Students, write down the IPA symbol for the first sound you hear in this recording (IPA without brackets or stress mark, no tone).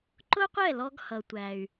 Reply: ǃ